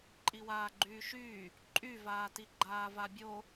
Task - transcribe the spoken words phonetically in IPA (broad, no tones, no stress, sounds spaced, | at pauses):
ǃʼ i w aː ɡ͡ǃ yː ʃ yː | ǃʼ y v aː t i ɡ͡ǃ aː v a bʲ o